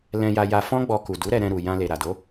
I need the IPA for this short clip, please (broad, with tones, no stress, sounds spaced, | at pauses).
l ɛ̃˧ j a˧ j a˧ f ɔ̃˦ ɡ͡b ɔ˧ k u˨ d u˨˦ ɾ ɛ˧ ɾ ɛ̃˧ ɾ u˧ j ã˦ l e˧ ɾ a˨ d o˨˦